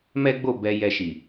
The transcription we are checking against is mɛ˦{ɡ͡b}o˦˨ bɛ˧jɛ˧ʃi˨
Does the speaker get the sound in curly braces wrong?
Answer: no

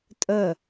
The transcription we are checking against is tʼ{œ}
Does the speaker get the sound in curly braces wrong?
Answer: no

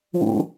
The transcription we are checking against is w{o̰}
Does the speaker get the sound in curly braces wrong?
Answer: yes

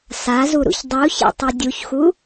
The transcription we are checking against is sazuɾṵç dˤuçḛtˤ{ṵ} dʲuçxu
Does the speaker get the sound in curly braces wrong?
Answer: yes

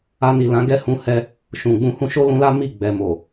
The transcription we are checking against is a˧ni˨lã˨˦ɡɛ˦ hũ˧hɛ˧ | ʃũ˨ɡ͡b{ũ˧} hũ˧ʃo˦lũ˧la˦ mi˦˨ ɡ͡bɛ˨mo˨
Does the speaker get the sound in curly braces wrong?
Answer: no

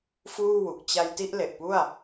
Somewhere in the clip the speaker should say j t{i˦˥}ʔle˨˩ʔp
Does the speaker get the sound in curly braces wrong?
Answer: yes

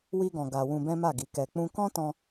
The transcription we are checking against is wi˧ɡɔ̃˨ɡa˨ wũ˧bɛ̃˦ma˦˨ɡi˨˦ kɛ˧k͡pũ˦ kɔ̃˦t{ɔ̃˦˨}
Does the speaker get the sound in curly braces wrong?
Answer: yes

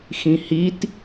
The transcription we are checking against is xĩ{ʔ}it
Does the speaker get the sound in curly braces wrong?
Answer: yes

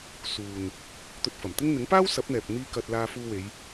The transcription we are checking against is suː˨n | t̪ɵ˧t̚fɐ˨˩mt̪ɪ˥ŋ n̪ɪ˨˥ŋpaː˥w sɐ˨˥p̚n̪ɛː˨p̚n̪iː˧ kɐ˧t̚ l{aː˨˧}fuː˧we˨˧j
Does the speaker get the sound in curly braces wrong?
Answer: yes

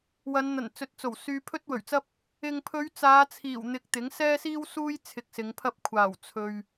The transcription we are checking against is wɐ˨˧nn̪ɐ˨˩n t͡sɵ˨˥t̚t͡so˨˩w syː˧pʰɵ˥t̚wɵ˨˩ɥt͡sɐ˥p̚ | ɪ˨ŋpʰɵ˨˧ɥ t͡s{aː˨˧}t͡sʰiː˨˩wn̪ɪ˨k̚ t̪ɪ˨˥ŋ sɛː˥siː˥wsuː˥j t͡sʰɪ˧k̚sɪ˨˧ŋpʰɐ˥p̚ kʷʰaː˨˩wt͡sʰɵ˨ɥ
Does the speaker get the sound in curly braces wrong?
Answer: no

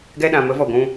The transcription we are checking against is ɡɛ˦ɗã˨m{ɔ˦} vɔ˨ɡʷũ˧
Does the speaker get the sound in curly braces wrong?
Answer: yes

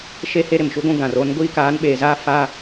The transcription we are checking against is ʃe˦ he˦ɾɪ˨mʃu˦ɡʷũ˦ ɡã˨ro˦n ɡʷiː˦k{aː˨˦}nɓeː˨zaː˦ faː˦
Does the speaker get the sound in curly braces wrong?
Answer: no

